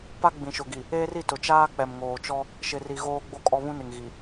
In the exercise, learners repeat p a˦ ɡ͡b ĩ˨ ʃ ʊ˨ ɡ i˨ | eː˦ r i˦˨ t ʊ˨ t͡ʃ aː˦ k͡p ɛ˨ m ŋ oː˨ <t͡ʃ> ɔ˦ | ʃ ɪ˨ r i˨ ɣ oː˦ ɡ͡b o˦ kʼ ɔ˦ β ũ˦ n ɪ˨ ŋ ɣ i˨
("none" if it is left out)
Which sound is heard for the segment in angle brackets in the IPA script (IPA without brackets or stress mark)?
t͡ʃ